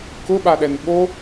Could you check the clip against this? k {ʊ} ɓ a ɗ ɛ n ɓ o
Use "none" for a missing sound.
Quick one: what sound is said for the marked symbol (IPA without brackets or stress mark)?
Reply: ʊ